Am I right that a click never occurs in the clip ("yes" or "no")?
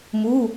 yes